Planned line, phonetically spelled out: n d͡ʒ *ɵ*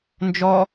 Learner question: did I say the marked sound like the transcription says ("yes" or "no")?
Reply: no